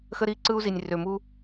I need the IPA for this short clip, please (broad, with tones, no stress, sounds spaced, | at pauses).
x ə˦ ɾ i˦ ǀ ɯ˦ u̯ z i˨ nʲ r ø˨ m u˦